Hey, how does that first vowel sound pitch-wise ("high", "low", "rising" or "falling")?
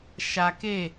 low